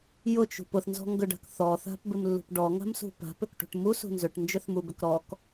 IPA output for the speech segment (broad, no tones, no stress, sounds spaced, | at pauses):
j ʊ t͡ʃ ṳ p ʊ θ n z ɔ̤ ŋ ɡ ʏ ɖ a̤ k θ ɔ θ a̤ p b ɪ m lː ṳ p ɖ ɔ ŋ a̤ m s ṳ p a̤ p ʏ k ʈ ṳ ʈ m u s ṳ n z ʏ ʈ n d͡ʒ ʏ θ m u b ʏ k ɾ ɔ k